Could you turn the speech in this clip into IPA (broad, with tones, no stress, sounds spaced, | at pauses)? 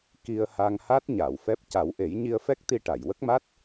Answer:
k i˧ ə̯ h a˧ ŋ h a˦˥ t̚ ɲ a˨˩˨ w f ɛ˦˥ p̚ c a˨˩˦ w ʔ e˨˩˦ j ɲ i˧ ə̯ f ɛ˦˥ k̚ t̪ i˧ ʈ a˨˩˨ j w ə˦˥ k̚ m a˦˥ t̚